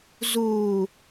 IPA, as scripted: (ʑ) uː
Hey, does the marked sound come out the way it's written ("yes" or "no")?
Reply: no